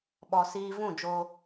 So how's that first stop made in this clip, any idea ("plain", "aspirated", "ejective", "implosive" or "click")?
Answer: implosive